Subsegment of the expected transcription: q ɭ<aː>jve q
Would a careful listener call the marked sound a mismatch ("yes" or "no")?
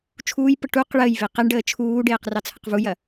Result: yes